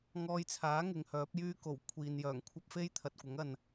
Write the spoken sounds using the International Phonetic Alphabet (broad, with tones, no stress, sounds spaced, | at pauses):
ŋ ɔː˧ j t͡sʰ aː˨˥ ŋ ɪ˨˧ ŋ h œː˨˥ p̚ j yː˥ k o˨˩ w kʷʰ iː˨ n j œː˨˩ ŋ kʷʰ ɐ˥ p̚ f e˥ j t̪ʰ ɐ˨ t̚ kʷ ɐ˨˥ ŋ ɐ˨ n